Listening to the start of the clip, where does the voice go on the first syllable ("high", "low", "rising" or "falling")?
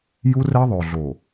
high